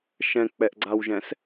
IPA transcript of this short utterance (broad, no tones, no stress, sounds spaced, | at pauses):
ʃ ɛ̃ k͡p ɛ ʔ ɡ͡ǀ a w ʒ ɛ̃ s